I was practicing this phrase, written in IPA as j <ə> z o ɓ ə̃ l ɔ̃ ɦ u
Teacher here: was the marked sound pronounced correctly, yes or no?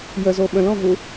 yes